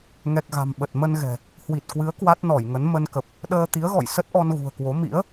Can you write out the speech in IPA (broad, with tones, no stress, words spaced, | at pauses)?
ŋɛ˨˩k̚ɣa̤˨˩m ɓə˨˩t̚ mə˧n ɣɛ̤˨˩ | hwi˨˩t̚kwɨ˨˦ə̯ kwa˦˥t̚nɔ˧˩jŋə˨˦n mə˧nkə˨˩p̚ | ɗəː˧t̪i˨˦ə̯ɣɔ̰˧˨j sə˦˥t̚ʔɔ˧n ɣṳ˨˩ə̯kwo˨˦ mḭ˧˥ə̯